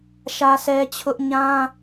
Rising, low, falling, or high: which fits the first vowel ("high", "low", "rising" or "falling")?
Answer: high